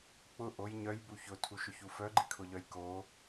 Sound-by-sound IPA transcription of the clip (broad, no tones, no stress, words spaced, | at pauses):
k͡pʊ ʔoj ɲœj buçʊ tʰuʃʊçufœ ɡ͡ǃikʰʊʎœjko